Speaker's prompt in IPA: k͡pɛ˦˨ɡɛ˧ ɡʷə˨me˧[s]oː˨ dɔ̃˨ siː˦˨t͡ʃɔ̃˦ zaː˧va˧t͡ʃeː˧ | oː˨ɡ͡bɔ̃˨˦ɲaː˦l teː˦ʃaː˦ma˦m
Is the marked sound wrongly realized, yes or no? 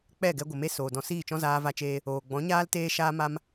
no